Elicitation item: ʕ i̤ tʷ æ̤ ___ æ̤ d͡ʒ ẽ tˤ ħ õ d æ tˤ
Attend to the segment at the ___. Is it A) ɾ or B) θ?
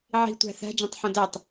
B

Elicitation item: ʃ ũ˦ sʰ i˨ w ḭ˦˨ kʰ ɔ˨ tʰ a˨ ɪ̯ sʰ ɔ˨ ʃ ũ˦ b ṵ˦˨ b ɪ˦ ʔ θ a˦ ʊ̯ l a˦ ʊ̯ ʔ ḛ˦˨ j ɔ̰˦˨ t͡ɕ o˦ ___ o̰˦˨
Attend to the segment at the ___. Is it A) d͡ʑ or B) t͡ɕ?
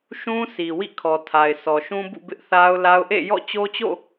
B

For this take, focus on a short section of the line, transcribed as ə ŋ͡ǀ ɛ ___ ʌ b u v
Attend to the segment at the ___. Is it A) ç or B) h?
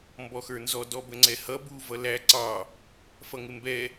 B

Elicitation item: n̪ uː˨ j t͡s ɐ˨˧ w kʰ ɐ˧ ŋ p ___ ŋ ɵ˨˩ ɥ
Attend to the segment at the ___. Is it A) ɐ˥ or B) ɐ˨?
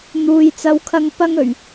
A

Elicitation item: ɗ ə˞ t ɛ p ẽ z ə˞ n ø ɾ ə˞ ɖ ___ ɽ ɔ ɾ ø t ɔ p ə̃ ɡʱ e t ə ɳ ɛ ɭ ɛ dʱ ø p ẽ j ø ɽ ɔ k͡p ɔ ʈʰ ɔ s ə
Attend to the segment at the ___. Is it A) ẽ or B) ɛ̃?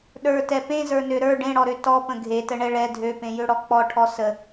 A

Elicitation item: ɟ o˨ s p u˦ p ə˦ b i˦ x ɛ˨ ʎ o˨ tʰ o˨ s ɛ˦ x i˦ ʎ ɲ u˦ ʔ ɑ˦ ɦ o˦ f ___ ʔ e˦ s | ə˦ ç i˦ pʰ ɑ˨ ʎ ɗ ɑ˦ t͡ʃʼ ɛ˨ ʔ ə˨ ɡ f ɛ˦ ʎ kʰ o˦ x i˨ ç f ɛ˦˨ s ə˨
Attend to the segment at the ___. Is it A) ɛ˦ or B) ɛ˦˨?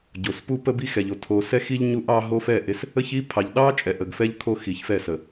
B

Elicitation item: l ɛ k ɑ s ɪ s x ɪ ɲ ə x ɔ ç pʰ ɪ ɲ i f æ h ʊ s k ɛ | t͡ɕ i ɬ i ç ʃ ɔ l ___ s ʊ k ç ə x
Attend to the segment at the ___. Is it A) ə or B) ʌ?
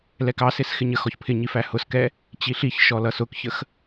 B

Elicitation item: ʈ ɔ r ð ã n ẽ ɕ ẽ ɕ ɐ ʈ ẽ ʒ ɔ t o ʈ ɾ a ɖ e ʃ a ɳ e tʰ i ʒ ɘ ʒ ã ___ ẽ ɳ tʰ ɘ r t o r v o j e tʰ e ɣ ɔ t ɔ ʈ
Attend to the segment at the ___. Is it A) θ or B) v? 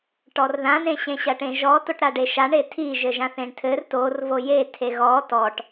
A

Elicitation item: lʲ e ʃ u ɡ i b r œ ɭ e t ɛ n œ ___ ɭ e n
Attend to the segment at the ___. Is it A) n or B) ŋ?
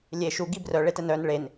A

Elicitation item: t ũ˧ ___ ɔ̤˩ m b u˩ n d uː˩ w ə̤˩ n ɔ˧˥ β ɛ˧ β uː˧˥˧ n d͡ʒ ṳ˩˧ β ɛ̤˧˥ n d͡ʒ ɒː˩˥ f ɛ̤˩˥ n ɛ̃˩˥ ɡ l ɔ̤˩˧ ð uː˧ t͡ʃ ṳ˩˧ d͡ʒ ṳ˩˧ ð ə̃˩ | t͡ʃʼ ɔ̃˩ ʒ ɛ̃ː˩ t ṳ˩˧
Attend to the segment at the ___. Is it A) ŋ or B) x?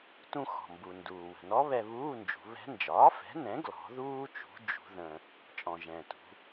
B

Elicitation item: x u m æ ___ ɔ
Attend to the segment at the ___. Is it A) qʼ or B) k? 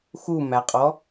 A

